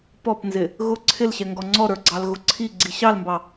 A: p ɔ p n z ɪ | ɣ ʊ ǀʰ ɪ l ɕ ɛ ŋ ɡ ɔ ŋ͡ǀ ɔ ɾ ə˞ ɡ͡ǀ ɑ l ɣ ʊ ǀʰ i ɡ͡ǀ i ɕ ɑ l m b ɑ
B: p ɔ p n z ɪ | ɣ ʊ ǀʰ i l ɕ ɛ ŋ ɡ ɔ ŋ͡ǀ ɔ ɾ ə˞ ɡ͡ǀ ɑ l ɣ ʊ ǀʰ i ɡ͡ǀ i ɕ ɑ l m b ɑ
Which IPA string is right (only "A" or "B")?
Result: A